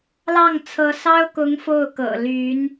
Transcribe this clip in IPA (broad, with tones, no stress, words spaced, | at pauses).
lɑ˥˩ŋ t͡sʰɤ˧˥sɑ˥ʊ̯kʊ˧˥ŋ fo˥˩ʊ̯kɤ̰˨˩ly˧˥n